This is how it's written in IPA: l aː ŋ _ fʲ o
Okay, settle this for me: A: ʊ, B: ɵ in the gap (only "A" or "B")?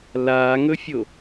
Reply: B